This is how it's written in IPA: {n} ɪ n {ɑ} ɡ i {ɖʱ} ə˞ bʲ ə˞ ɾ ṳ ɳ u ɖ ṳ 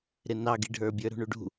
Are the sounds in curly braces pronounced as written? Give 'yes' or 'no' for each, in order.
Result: no, yes, yes

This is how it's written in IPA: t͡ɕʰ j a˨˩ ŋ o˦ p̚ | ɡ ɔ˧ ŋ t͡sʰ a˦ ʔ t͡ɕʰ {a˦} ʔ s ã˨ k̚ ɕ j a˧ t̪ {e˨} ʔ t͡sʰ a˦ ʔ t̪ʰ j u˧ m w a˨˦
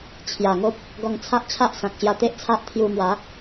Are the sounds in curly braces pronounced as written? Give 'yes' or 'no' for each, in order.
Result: yes, no

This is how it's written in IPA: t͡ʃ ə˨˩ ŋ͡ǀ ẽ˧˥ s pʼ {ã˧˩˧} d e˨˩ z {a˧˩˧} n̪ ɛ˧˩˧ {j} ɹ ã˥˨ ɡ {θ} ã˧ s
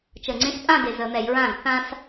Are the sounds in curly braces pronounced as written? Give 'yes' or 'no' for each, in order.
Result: no, no, yes, yes

